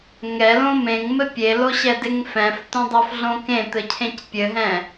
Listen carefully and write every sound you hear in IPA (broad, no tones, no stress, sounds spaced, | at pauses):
ŋ ɛ l õ m ẽ ŋ m ɘ pʲ e l o ɕ ɛ d e ŋ f ɛ̃ f t õ dˤ o f ɮ õ k ẽ t̪ ɘ cʰ ẽ c pʲ ɘ ɦ ɛ̃